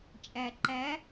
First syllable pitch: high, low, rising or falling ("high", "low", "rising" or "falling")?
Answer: low